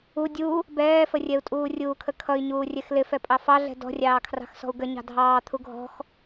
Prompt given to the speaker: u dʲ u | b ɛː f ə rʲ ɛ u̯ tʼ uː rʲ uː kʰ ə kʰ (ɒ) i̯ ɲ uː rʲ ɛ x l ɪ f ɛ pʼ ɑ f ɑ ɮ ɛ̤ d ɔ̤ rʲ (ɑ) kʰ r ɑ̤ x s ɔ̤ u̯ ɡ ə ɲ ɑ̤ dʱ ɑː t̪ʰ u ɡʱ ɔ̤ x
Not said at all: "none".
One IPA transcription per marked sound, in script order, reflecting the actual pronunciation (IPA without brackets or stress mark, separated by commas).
ʌ, ɑː